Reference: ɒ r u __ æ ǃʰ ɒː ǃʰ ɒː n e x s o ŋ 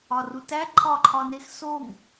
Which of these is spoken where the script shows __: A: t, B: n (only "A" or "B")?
A